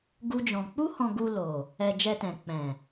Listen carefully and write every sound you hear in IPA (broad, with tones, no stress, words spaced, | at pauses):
ɡu˦d͡ʒɔ̃˧ k͡pu˦hɔ̃˧ɡu˧ lo˨ | ɛ˧ d͡ʒɛ˧tɛ̃˨ k͡pɛ̃˨